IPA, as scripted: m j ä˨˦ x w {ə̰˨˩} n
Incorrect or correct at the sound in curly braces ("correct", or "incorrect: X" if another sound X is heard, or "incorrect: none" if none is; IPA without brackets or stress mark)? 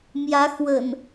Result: correct